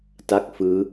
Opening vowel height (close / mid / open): open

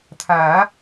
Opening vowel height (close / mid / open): open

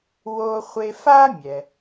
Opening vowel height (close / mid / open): mid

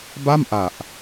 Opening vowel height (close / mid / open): open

